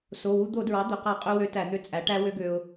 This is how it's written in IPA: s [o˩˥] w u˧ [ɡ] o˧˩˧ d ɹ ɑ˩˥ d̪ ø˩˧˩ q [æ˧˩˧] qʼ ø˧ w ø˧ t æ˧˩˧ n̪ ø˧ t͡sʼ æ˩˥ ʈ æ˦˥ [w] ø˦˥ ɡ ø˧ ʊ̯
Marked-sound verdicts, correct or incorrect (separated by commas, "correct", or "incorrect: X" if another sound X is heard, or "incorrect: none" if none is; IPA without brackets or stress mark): incorrect: o˩˧˩, incorrect: d̪, correct, correct